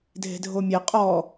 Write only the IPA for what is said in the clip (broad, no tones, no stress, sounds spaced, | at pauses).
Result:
dʱ e̤ dʱ o mʲ ɛ qʼ ɔ